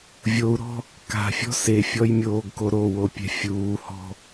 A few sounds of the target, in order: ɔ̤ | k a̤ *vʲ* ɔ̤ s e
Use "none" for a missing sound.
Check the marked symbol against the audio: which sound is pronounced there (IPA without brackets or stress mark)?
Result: fʲ